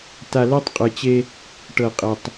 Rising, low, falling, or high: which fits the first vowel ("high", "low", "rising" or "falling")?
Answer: low